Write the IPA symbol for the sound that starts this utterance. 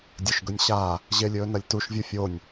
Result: dʲ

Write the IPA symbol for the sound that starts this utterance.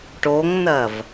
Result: ʈ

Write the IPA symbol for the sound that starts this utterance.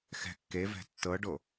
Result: x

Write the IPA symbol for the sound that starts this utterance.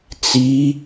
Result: t͡s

